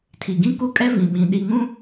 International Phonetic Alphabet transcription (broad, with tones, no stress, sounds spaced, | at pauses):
tʰ i˨ ɡ ĩ˦ k u˦ kʼ ɛ˦ v ĩ˨ ɓ ĩ˨ ɗ i˨ ŋ ũ˦